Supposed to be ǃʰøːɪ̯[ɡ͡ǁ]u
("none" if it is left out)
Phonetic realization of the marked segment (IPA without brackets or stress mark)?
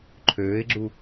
ɡ͡ǁ